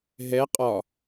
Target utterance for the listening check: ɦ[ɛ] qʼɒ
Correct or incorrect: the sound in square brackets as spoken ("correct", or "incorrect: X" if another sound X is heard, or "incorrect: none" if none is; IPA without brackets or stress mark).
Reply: correct